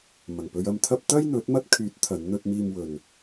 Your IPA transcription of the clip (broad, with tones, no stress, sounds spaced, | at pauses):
m ɐ˨˩ ŋ p ɵ˧ ɥ ɐ˧ m t̪ʰ ɐ˥ p̚ t̪ ɐ˥ j n̪ ɵ˨˥ t̚ m ɐ˥ t̚ kʰ yː˨˥ t̚ t̪ʰ ɐ˨˥ n n̪ ɵ˥ t̚ m iː˧ m w ɵ˨ n